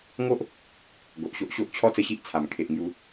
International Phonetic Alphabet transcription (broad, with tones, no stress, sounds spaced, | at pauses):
ŋ o˦ ʔ | ɡ o˨ ʔ ɕ o˦ ʔ ɕ o˦ ʔ t͡ɕʰ ɔ˦ t͡s ə˧ ɕ i˦ ʔ t͡sʰ a˨˩ m kʰ e˨ ʔ ŋ j u˨˦